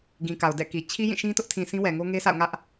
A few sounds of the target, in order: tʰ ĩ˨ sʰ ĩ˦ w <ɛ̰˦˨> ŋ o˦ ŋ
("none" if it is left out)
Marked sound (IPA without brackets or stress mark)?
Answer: ɛ˨